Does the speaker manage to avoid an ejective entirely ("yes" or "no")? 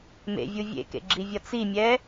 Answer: yes